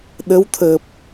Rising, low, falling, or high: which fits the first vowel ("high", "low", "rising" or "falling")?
rising